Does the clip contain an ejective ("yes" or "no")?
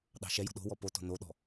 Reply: no